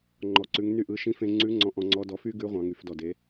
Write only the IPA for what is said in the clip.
ŋ͡ǃɔ˩ǀʉ˩˧ŋ ny˧ʔɯ˩˧ʃĩ˧˥fẽ˧ ŋ͡ǀʉ˧˥ŋ͡ǀɔ̃˧ ʔɔ̃˧ŋ͡ǀɔ˧˥dɔ˧ fy˥ɡʉ˧˥ʁʷɑ̃˩˧ ŋy˩˧fdɔ˩de˩˧

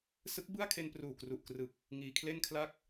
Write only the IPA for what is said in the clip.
sɯ˦˥k̚bɯ˥˩a̯ kʰe˧npruː˨˩kru˨˩ʔkrɯ˨˩k̚ | ŋiː˧kʰle˥˩nkʰla˥˩k̚

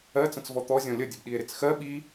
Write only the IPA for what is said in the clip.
ɜt͡sə̃t͡svɔ t̪ɔ zʲɔ̃lʲədʲəb ɗie̯ɾɪt͡sxɜ ɓi

